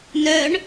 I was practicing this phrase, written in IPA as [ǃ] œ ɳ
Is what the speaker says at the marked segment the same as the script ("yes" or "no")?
no